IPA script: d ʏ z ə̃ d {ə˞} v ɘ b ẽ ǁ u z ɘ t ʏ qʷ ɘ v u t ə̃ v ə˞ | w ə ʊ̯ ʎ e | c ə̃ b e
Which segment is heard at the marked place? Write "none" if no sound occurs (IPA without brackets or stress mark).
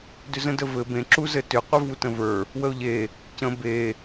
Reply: ə